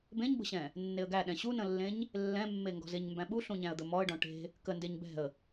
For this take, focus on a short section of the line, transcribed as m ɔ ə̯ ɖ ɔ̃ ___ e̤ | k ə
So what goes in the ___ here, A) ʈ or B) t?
A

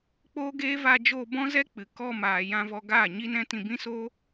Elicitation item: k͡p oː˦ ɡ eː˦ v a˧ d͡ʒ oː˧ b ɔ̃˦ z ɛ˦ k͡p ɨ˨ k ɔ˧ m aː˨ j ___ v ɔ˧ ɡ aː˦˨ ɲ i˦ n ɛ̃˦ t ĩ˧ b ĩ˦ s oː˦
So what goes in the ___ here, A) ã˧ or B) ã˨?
A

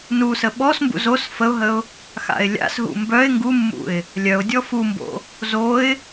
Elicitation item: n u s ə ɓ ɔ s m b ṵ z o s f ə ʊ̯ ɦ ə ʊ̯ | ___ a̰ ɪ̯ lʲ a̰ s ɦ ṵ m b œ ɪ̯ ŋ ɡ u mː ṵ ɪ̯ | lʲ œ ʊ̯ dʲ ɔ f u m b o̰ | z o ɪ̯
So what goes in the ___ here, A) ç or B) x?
B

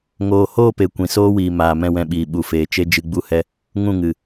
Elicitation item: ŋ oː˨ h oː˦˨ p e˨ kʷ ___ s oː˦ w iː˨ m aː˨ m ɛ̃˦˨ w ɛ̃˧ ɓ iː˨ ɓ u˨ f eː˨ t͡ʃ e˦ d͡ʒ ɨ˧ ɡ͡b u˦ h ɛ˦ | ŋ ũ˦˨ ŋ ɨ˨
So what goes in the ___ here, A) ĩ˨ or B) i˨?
A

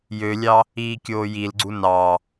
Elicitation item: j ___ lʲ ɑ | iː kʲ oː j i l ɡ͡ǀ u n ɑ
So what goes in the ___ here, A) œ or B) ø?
B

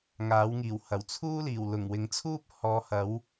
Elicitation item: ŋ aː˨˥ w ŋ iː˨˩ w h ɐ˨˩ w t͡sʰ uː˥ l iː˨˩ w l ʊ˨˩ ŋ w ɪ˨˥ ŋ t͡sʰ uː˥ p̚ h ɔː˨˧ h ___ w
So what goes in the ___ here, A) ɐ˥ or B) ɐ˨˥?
B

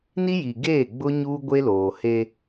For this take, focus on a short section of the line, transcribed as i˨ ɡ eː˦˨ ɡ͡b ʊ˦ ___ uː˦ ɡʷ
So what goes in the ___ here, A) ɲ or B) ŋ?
A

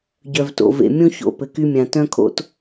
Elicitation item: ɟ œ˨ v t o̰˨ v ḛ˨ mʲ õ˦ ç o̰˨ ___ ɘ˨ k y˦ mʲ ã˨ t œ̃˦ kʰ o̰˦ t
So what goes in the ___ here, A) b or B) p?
B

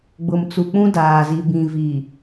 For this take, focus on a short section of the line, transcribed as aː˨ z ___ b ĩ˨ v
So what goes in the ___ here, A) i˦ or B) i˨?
B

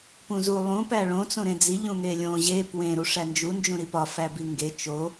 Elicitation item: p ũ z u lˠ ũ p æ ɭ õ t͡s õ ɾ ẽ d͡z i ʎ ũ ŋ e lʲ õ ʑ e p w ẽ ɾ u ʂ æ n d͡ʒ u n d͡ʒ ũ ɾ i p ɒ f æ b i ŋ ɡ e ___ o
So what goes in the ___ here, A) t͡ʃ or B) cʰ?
A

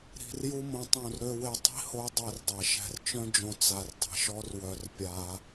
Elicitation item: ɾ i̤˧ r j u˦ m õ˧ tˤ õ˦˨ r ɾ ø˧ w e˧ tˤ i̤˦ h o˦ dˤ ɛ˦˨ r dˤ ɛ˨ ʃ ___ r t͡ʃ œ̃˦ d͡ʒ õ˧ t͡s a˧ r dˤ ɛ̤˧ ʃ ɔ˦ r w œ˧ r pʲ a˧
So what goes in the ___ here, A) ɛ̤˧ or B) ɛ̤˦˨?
A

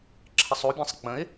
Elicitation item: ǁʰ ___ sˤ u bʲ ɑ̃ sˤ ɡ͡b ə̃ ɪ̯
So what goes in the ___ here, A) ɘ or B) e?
A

